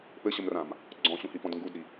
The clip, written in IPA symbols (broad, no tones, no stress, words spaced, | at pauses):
pɘɕəmrãm | ɡ͡ǀɔ̃ɕũhipɔ̃d ŋɡudɾi